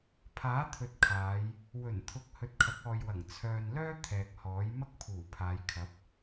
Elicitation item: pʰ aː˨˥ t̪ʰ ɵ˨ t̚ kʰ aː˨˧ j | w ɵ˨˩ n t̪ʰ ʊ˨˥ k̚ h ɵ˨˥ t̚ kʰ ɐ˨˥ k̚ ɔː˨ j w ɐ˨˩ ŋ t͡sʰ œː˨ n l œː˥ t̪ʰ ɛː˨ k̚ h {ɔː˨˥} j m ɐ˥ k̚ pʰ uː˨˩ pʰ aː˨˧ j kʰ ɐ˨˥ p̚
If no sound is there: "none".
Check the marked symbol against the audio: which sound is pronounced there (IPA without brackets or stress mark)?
ɔː˨˥